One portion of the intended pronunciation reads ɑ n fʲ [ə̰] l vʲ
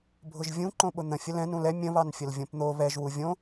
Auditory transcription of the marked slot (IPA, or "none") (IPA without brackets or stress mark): ə